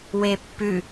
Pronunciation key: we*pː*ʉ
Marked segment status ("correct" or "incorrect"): correct